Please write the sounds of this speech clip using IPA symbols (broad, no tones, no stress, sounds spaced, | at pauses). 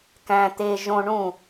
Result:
k æ̃ t̪ e ʒ õ ɳ ũ